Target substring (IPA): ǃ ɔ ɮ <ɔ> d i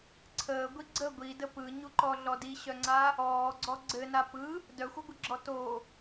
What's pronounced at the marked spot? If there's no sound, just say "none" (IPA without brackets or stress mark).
ɔ